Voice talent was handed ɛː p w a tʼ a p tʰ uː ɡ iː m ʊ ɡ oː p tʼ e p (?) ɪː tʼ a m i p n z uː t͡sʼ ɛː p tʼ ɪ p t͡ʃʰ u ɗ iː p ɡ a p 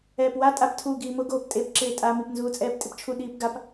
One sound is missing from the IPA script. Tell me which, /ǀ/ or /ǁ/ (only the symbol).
ǁ